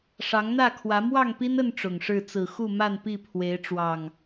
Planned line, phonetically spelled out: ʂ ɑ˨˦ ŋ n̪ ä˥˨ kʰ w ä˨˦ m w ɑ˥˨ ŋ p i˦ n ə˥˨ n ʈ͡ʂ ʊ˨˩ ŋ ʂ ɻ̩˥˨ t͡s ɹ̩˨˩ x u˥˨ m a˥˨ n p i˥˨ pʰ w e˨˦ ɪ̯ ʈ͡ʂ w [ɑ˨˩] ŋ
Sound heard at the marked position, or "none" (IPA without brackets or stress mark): ɑ˨˩